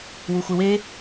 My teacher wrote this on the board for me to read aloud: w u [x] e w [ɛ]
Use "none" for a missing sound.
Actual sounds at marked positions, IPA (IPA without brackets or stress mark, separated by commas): xʷ, e